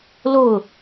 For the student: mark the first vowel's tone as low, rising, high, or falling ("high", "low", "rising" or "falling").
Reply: falling